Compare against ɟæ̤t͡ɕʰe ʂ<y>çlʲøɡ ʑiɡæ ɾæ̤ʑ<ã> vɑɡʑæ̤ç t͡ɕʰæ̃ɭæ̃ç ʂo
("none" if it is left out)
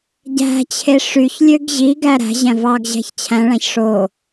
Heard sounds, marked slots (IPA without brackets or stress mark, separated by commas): y, æ̃